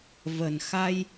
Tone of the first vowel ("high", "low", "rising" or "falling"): low